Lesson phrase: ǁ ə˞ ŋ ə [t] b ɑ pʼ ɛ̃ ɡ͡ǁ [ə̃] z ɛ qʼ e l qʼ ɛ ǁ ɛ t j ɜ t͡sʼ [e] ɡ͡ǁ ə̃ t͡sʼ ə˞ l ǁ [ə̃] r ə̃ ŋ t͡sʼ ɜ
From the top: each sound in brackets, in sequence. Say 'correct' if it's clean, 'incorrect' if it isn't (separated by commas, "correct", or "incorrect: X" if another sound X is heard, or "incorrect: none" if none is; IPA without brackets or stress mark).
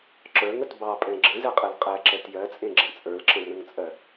correct, correct, incorrect: ẽ, correct